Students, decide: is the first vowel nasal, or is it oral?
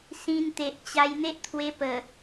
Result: nasal